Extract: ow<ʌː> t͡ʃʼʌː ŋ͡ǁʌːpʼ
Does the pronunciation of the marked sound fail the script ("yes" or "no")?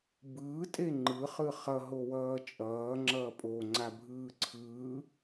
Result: no